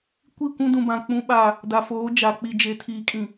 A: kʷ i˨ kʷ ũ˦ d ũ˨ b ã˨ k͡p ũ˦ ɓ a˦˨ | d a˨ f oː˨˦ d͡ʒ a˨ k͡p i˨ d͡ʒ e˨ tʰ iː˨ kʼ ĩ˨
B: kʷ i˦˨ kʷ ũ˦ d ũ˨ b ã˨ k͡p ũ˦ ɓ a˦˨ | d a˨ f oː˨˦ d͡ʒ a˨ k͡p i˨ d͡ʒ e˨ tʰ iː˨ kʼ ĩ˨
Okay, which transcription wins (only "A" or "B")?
B